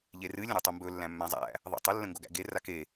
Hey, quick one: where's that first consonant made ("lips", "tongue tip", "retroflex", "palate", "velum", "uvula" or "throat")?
palate